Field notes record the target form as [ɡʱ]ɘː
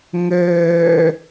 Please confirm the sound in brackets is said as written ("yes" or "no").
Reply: no